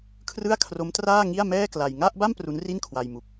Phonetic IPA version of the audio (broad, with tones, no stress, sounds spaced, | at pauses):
kʰ r ɯ˥˩ a̯ kʰ r o˦˥ m t r aː˥˩ ŋ i˥˩ a̯ m ɛː˥˩ k l a˧ j ŋ a˥˩ ʔ b a˥˩ m p r u˦˥ n r i˥˩ n kʰ w a˧ j m u˨˩ k̚